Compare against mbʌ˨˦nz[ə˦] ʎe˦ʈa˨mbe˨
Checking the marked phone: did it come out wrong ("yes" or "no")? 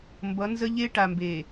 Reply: no